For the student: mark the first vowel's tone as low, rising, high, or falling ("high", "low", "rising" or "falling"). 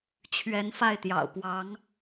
rising